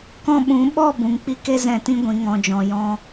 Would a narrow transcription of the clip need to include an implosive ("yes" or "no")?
yes